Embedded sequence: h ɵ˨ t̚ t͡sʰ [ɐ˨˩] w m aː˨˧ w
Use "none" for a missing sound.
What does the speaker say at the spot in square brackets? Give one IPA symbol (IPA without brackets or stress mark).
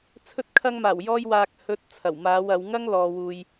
ɐ˨˩